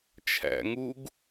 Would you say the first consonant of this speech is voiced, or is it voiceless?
voiceless